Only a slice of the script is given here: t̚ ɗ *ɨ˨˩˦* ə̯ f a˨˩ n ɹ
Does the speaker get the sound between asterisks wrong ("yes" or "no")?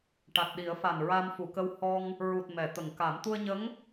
yes